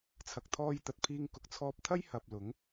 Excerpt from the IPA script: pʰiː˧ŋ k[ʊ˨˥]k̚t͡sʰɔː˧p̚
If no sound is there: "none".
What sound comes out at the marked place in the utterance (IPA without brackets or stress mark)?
ʊ˨